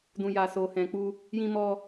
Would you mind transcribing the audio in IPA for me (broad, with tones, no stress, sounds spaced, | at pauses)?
d ũ˨ j a˨ s o˨ h ɛ̃˨ k͡p u˧ | j ĩ˧ m ɔ˧